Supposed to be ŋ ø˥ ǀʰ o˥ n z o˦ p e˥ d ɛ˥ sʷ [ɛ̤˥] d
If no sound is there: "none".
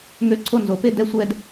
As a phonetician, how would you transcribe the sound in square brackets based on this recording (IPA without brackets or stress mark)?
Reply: ɛ˥